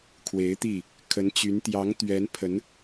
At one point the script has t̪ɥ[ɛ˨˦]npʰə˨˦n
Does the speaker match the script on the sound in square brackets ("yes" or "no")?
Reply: yes